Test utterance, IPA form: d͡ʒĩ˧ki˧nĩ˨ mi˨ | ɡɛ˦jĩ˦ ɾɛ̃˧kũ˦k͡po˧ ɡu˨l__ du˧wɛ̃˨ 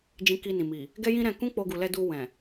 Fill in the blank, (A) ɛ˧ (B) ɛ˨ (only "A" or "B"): A